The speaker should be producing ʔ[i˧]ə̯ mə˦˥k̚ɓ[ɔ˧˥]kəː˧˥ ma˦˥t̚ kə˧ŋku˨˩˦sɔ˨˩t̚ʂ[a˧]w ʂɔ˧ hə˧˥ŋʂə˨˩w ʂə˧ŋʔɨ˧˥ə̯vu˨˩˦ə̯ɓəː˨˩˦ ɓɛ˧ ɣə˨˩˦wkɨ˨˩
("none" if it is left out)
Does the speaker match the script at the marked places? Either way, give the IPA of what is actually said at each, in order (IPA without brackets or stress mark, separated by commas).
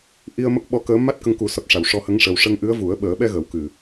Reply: i˧, ɔ˧˥, a˨˩˨